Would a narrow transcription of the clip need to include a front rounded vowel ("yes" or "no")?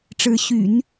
yes